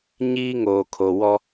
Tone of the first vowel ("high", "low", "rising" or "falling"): high